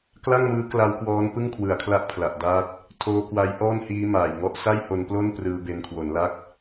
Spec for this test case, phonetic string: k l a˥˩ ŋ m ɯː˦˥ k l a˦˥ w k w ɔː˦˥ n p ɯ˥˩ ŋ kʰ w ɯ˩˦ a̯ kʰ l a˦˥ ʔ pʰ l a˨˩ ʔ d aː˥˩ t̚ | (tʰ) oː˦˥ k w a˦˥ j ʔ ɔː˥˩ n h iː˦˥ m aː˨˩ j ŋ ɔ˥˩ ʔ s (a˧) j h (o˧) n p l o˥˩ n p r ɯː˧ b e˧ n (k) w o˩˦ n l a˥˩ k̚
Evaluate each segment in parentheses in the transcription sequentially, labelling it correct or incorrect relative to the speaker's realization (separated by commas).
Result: correct, incorrect, correct, incorrect